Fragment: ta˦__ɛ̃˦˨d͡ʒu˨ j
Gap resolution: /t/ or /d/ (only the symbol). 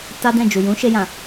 d